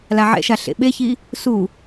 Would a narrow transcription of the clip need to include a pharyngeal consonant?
yes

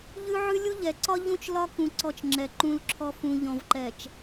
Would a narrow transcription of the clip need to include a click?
yes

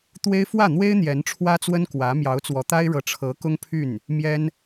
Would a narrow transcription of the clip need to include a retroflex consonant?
yes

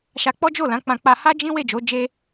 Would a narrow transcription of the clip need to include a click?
no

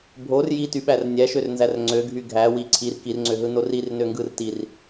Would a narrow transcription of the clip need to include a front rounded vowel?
yes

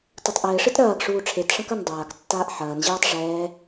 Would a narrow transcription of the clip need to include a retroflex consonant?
yes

